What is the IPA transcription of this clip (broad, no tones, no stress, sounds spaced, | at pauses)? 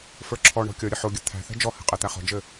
f ə˞ ǁʰ ɔ ɳ ɔ̤ kʲ ɔ ɾʲ ə ħ o ɡʲ ə t̪ʰ æ̤ θ ɛ̤ d͡ʒ ɔ h ɛ̤ qʼ ɛ t̪ æ χ ɔ̤ d͡ʒ ɘ